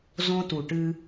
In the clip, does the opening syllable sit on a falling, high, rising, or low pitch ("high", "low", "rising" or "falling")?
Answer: high